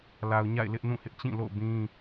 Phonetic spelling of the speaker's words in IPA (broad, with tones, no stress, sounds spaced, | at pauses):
l a˨ ʊ̯ ɲ a̰˦˨ ɪ̯ l ɪ˦ ʔ n ũ˦˨ h ɪ˦ ʔ t͡ɕ ĩ˦˨ l o̰˦˨ ʊ̯ b ĩ˦